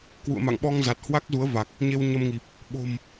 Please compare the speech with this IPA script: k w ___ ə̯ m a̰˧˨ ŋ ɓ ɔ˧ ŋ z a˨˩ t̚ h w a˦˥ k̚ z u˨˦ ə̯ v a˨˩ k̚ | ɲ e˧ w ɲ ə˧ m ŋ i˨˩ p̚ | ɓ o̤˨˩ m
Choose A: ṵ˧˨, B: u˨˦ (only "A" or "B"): A